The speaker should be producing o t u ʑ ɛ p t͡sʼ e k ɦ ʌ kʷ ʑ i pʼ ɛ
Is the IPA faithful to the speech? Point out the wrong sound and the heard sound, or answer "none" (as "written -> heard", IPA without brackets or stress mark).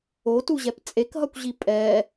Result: none